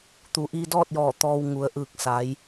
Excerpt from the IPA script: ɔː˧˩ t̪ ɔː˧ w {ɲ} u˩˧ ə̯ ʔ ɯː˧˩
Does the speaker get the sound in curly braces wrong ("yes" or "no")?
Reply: yes